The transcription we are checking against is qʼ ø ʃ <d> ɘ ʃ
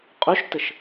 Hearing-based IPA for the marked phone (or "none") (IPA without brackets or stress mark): t